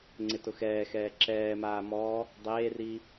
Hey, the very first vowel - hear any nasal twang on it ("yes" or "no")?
no